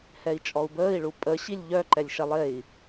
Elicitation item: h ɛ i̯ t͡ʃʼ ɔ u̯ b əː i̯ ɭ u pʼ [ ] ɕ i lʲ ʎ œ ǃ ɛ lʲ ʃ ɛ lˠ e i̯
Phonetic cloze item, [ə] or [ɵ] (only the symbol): ə